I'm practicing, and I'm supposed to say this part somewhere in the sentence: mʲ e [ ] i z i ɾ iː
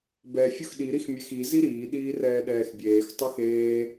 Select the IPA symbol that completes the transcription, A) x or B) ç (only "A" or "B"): A